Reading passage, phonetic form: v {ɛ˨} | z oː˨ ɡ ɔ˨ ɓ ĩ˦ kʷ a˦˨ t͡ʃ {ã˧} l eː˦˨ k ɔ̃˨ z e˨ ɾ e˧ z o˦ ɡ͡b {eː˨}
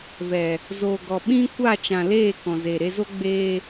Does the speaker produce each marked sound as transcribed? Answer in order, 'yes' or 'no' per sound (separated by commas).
yes, no, no